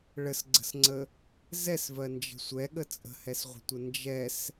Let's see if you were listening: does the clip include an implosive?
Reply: yes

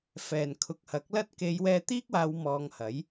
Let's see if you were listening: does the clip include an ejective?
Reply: no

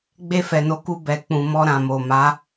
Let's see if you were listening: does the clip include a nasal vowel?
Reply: yes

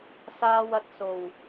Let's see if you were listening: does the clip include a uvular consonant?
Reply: no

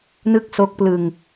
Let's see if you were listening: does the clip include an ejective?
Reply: no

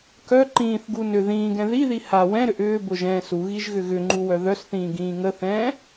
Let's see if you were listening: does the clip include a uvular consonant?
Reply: no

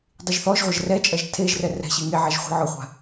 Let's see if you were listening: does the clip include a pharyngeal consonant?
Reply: yes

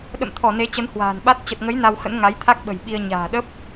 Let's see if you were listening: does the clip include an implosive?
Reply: yes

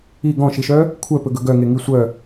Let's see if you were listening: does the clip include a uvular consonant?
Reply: no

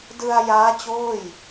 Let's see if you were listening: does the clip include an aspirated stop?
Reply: no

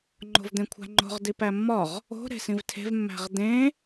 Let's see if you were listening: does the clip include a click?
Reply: yes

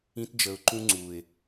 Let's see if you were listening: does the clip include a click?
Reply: yes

